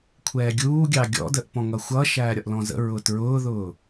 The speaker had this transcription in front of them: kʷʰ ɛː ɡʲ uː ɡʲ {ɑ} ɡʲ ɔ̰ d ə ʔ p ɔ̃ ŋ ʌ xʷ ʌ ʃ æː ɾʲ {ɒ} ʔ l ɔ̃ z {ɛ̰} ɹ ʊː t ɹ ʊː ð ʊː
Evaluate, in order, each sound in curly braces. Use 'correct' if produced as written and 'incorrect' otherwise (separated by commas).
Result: correct, correct, incorrect